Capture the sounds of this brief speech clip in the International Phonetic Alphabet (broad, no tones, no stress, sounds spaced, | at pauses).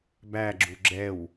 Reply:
b æ ɡ͡ǁ u ɡ͡ǁ ɛ w